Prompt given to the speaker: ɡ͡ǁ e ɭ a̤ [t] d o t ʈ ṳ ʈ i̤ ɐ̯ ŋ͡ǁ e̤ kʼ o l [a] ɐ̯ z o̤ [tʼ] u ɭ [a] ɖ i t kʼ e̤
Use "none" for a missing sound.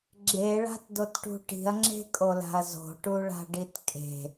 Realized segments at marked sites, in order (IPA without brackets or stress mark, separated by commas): t, a̤, ʈ, a̤